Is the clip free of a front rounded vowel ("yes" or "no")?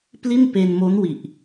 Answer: yes